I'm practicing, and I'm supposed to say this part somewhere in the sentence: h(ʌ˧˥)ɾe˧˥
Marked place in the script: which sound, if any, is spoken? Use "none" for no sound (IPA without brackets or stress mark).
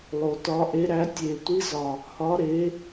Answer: ɒ˧˥